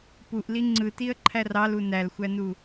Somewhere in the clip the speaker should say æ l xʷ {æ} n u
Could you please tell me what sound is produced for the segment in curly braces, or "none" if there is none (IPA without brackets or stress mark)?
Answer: æ